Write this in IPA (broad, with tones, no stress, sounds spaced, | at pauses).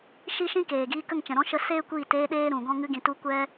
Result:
ʃ i˦ ʃ ĩ˦ k eː˨ ɡ iː˧ k ə˦˨ ŋ t͡ʃ ɛ̃˨ ɾ ɔ̃˦ ʃ ə˧ s eː˦ kʷ iː˦˨ t eː˦ ɗ eː˦ ɾ ũ˨ ɡ ɔ̃˦ ŋ ɨ˧ ɡ ĩ˨ t u˧ kʷ ɛ˦